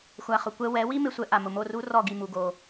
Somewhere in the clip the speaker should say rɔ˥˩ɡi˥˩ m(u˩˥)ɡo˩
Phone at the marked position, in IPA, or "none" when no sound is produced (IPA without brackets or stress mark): u˩